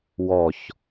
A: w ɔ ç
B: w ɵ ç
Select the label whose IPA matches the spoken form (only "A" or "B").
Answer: A